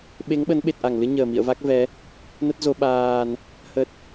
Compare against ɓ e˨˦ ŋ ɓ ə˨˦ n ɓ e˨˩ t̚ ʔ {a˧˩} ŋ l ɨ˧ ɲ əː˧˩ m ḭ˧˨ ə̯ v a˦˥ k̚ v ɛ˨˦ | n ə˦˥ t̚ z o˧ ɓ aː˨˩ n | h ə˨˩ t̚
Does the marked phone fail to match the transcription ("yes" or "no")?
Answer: no